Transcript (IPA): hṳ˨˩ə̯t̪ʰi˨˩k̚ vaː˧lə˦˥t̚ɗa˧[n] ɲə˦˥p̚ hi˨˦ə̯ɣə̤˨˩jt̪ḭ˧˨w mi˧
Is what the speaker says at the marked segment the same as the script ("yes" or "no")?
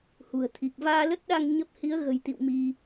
no